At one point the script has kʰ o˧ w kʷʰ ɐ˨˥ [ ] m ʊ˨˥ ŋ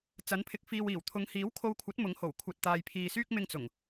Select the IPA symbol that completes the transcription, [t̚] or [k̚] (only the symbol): t̚